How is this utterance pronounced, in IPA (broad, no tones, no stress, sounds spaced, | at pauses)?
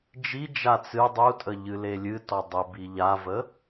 d͡ʒ i d͡ʒ a t͡s ɨ dˤ u tʼ ə ʎ ɨ l e lʲ ɨ t ɔ dˤ ə b i ʎ a v ə